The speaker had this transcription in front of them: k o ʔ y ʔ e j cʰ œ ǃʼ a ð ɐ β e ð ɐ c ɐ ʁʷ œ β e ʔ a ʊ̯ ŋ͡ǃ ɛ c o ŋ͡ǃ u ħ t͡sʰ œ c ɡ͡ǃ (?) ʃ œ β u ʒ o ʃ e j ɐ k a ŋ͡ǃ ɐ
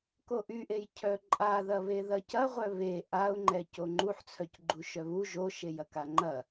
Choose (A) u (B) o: A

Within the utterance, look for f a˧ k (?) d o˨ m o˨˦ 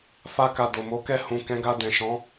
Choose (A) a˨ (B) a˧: A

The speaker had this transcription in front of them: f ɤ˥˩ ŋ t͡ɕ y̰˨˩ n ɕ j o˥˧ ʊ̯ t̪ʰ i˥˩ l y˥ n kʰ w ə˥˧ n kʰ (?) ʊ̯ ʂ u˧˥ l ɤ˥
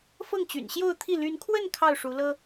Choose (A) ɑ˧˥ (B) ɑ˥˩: B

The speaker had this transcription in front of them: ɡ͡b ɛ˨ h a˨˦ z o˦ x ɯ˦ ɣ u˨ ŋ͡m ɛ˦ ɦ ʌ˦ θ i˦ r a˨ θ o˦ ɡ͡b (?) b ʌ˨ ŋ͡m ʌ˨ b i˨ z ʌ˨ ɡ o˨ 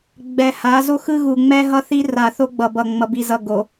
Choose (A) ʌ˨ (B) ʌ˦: A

